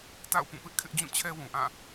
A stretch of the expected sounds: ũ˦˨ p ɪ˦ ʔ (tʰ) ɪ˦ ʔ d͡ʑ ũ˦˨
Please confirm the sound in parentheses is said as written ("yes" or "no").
no